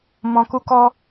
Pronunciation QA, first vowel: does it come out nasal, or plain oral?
nasal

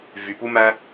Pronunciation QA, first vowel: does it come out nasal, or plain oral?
oral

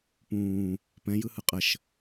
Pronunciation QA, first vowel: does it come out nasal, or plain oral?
nasal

